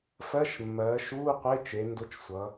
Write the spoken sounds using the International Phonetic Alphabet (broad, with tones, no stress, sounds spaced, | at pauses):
f ɜ˧˥˧ ʃ mː ɜː˩˧ ʃ uː˧˥˧ qʷ e˧˥˧ t͡ʃ e˩˧ n d ʊ˧˥˧ t͡ʃ sʷ ʌ˩˧